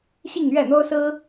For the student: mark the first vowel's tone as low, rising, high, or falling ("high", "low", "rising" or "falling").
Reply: falling